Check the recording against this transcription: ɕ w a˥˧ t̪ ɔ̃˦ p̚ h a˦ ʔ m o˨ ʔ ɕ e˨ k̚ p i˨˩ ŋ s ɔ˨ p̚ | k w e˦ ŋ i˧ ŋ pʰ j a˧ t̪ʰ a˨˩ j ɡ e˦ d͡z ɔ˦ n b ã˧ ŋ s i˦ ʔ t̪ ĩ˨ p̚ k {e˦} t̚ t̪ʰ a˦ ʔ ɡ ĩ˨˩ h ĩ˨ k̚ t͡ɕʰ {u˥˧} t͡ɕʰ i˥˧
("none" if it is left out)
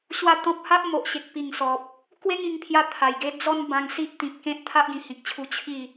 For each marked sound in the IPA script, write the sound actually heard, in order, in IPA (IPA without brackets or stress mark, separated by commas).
ẽ˦, u˧